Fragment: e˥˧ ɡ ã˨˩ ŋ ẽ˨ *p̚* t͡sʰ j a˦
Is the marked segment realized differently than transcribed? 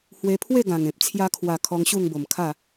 no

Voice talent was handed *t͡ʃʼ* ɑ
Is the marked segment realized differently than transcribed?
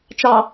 yes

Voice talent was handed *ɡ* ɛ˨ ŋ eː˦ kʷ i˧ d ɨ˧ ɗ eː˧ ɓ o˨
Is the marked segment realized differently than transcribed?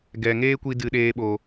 no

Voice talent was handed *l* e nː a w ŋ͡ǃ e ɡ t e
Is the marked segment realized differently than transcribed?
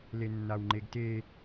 no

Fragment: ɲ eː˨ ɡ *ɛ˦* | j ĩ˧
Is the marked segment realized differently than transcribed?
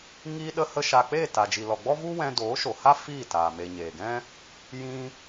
yes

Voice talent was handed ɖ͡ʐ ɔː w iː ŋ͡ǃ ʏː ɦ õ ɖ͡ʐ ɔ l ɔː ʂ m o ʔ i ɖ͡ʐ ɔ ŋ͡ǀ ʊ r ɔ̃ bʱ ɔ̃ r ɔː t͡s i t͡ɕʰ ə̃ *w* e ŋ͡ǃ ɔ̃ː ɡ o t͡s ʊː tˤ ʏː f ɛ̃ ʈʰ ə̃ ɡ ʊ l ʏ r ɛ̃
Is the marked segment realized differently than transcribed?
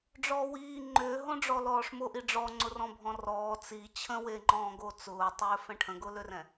no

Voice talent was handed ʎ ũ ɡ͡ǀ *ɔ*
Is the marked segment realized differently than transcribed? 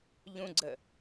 yes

